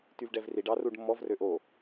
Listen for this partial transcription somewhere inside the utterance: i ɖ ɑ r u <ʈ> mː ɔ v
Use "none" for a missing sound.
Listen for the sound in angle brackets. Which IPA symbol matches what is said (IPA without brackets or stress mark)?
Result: ɖ